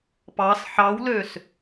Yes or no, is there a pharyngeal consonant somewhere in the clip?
yes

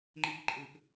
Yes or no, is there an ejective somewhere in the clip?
yes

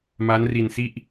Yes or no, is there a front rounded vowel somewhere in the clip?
no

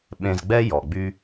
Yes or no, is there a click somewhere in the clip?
no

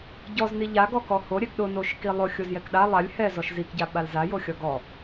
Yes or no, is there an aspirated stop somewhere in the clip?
no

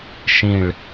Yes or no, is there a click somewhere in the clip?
no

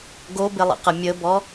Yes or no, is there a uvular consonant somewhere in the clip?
yes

